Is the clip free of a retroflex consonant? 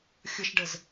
no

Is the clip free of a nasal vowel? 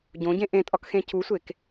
no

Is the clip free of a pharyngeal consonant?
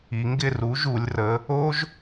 yes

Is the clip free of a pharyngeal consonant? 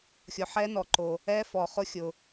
no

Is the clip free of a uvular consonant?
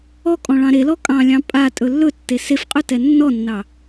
no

